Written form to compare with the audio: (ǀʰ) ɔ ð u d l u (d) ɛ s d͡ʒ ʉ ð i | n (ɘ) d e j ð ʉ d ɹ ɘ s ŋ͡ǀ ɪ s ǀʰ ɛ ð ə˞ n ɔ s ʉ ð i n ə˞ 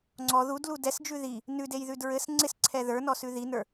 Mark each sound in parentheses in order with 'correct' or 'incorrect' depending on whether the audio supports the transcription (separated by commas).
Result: incorrect, correct, incorrect